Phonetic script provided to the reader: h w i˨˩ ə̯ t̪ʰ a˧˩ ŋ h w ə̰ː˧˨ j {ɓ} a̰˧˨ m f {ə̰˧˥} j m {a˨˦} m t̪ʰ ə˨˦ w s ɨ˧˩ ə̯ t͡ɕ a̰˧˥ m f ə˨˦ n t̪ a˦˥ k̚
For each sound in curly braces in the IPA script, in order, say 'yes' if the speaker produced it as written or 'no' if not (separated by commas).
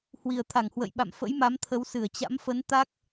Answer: yes, yes, yes